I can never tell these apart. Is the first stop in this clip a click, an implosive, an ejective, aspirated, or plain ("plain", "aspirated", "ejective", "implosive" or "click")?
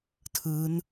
aspirated